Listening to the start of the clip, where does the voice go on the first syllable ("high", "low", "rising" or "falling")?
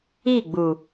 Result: falling